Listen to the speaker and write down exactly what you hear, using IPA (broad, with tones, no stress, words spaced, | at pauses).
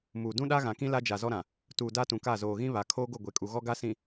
muː˨ dũ˦ɗa˦ɣã˨kĩ˦ la˦d͡ʒa˨ zɔ˦ɾã˨ | tuː˨ da˦tũ˨ka˦˨ zoː˨ɣĩ˦βa˨kʰoː˦ ɡo˦˨ɡʷe˨kʼu˨ɣɔ˦ ɡa˦sĩ˨